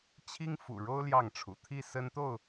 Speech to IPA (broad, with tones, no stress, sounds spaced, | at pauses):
t͡ɕʰ i˦ ŋ f ṵ˨˩ ɻ o˦ ʊ̯ l j ɑ˥˨ ŋ ʈ͡ʂʰ ṵ˨˩ t̪ʰ i˥˨ s ə˦ n t̪ o˥˨ ʊ̯